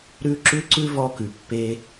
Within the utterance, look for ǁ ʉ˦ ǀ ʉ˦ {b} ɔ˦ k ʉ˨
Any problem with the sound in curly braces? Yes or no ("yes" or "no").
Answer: yes